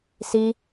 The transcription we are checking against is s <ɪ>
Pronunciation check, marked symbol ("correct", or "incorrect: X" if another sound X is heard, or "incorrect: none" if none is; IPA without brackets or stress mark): incorrect: i